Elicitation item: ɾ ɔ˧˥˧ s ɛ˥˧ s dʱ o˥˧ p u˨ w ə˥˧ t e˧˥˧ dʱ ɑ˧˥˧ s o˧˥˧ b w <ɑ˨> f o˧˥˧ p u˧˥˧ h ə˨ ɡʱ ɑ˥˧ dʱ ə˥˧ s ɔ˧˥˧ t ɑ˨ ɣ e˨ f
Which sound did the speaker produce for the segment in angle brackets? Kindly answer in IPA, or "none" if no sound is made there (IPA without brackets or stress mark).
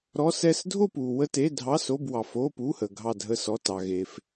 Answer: ɑ˨